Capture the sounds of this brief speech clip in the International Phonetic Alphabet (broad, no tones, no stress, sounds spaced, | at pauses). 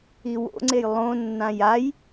i w o̰ ŋ͡ǀ e j lˠ õ nː ã j a j